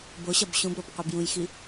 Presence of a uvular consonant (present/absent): present